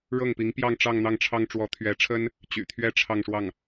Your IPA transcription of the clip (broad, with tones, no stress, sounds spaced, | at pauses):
ɻ ɤ˥˩ ŋ p i˧˥ ŋ p j ɑ˥˧ ŋ ʈ͡ʂ ɑ˥˧ ŋ n̪ ɑ˥˩ ŋ ʈ͡ʂʰ ɑ˥ ŋ ʈ͡ʂ w ɔ˧˥ t̪ʰ ɥ ɛ˧˥ ʈ͡ʂʰ ə˥ n | t͡ɕ y̰˨˩ t̪ʰ ɥ ɛ˥ ʈ͡ʂʰ ɑ˥˧ ŋ ʂ w ɑ˥˩ ŋ